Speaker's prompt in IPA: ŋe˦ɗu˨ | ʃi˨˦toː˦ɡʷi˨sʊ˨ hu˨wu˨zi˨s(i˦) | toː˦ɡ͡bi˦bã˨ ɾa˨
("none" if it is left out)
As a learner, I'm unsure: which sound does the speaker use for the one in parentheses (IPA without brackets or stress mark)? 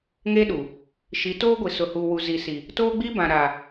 i˨